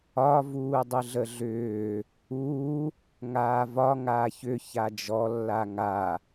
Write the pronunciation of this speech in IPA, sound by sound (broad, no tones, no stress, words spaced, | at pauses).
ɒ vuːdˤɯɮəɮʏː | uː | ŋaːvɒ ŋaːçʏ çad͡ʒɔ lːaŋa